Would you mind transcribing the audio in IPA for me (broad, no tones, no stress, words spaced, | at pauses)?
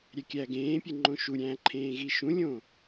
ɾʲækʲæːɡẽːpʲe ŋ͡ǃõʃuɾʲæ̃ː ǃʰẽːɣiʃũlʲõː